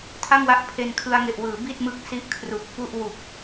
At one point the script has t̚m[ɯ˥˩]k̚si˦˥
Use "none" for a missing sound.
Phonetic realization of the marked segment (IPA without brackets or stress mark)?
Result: ɯ˦˥